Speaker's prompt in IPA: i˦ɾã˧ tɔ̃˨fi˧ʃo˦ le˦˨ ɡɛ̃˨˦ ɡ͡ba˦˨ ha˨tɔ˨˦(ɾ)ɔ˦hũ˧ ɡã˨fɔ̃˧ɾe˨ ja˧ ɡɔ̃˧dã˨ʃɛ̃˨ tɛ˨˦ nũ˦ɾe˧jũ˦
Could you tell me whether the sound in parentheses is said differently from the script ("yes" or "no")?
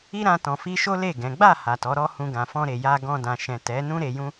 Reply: no